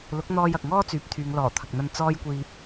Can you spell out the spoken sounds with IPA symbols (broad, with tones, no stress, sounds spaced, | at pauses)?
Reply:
l ʊ˨˥ k̚ n̪ ɔː˧ j ɐ˨ k̚ ŋ ɔː˥ t͡s yː˨˥ p̚ t̪ʰ yː˨˧ ŋ l ɔː˨˩ t̪ʰ ɐ˨ k̚ n̪ ɐ˧ n t͡s ɔː˥ j kʷ iː˧ p̚